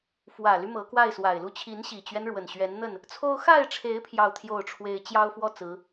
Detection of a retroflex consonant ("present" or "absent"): present